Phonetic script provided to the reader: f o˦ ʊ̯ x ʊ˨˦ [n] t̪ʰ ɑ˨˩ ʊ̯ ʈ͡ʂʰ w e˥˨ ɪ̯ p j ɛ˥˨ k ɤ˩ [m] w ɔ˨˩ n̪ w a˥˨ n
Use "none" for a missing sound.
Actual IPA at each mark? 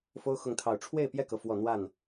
ŋ, f

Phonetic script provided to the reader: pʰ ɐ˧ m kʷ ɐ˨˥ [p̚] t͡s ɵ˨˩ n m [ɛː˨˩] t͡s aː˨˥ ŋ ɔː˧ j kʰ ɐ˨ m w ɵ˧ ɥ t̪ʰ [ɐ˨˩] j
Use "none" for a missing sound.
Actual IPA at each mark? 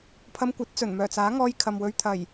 t̚, œː˨˩, ɐ˨˩

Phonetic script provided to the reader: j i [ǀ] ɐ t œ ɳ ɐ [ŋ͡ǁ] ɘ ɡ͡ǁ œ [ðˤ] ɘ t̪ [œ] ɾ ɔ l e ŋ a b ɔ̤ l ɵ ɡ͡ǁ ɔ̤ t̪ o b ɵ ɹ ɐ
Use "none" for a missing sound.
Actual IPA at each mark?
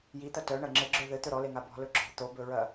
t̪, ŋ͡ǁ, ð, ɵ

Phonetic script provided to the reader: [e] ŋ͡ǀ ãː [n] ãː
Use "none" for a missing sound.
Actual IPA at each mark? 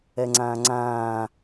ɛ, ŋ͡ǀ

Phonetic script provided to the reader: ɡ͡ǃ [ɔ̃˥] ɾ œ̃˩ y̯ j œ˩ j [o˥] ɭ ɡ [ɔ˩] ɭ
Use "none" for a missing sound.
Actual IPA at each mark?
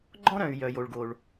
ɔ̃˥, o˩, o˩

